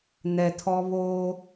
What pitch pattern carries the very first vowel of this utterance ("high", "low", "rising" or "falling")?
low